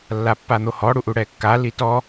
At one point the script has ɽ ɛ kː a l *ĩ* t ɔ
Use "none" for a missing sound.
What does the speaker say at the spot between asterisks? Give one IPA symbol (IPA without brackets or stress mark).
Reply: i